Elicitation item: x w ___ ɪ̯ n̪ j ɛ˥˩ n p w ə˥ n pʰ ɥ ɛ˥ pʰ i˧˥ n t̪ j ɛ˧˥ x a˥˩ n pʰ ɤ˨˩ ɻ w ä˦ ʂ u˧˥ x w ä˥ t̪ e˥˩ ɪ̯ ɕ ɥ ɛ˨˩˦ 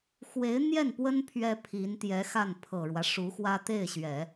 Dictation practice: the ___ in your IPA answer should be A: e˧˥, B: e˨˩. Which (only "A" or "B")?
A